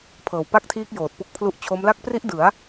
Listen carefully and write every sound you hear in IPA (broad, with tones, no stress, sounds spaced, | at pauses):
pʰ ɤː˨˩ w p a˥˩ k̚ tʰ iː˦˥ k̚ j oː˨˩ t̚ p u˦˥ k̚ pʰ l u˦˥ ʔ t͡ɕʰ o˦˥ m l a˦˥ k̚ p r i˦˥ ʔ d ɯ˩˦ a̯